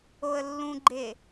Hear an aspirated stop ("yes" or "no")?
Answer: no